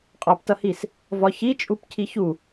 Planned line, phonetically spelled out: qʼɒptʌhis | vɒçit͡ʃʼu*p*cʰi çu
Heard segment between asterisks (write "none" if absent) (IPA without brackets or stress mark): p